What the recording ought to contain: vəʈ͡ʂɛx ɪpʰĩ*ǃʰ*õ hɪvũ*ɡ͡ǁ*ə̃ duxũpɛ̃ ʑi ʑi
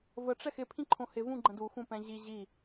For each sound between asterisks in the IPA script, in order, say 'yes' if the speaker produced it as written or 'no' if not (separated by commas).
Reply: yes, no